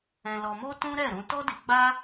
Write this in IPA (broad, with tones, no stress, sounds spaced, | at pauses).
ɛ̃˧ l ɔ˧ m o˦ t ũ˦ ɾ ɛ˦˨ ɾ ũ˧ t ɔ˦ d i˧ ɡ͡b a˦